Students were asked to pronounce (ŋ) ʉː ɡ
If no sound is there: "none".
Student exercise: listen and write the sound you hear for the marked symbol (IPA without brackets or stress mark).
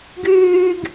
ɡ